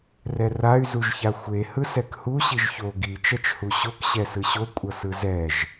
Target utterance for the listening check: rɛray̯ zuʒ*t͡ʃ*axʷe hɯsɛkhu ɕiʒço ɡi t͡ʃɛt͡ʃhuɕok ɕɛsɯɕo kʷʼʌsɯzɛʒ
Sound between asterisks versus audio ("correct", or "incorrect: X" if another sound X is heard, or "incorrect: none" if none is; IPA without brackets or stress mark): incorrect: ç